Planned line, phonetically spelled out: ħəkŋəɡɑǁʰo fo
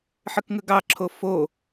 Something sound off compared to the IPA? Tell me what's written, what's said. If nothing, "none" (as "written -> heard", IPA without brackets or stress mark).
none